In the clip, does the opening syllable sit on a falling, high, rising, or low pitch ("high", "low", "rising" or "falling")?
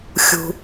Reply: low